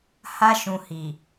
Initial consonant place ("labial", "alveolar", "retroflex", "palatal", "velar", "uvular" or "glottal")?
glottal